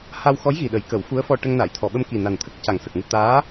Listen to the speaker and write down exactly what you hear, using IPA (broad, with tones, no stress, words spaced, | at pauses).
ha˧wxɔ˧˥j ɣi˨˩ɗə˨˩˦jkə˨˩˦w fu˧˥ə̯fɔ˧ʈə˧ŋna˨˩˨j t̪ʰɔ˨˩˨ɓə˧m ki˨˩na˨˩nt̪ʰə˦˥k̚ ca˨˩ŋsə˨˩k̚ŋu˧ t̪aː˧˥